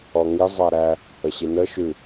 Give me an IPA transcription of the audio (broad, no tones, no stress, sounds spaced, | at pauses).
ɔ ŋ i zˤ æ ɾ æ | ə ɕ i n ə ʃ ʉ